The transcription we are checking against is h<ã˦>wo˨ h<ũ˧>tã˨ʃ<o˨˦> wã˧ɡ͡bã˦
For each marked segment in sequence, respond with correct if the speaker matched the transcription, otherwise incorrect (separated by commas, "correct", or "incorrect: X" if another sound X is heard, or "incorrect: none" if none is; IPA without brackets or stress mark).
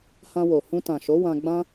incorrect: ã˧, correct, correct